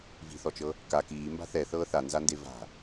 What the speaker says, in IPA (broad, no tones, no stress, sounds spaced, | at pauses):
v i̤ θ ɔ t͡ʃ ɤ | k a k iː m b a̤ θ ɛ θ ɤː θ a n z a n d e v a̤